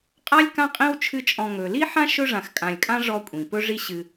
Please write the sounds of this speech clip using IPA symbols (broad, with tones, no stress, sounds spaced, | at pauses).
qʼ a˥ lʲ k ã˥ qʼ ĩ˥ w t͡ʃʰ ɨ˦ t͡ʃʼ ɔ̃˨ ŋ ɵ˩ l i˥ ħ ã˥ ʃ ɵ˦ ʐ ã˨ x kʼ ã˨ lʲ kʼ ã˥ ʐ ɔ˦ kʷʼ ĩ˩ p ɵ˥ ʐ i˦ ɕ ɨ˨